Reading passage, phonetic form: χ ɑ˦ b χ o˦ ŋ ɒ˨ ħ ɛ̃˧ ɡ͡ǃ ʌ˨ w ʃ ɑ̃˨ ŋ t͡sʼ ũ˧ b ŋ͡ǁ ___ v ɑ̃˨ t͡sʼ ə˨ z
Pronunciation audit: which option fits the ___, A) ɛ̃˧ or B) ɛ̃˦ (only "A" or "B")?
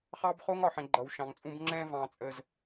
A